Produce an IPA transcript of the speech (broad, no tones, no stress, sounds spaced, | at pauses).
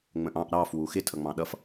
ŋ͡m ə̃ ʔ ɑ̃ ʔ ɾ ɑ f w u x ɪ tʰ ʌ ŋ͡m ɑ̃ ɗ ʌ f